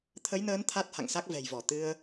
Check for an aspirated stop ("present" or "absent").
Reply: present